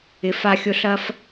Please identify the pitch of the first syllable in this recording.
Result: low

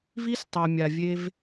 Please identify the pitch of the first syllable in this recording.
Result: high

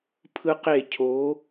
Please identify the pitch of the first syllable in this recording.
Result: low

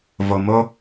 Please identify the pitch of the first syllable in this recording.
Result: low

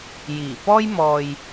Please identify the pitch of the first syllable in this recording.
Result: low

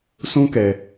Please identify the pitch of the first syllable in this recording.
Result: high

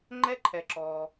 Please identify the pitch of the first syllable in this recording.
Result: high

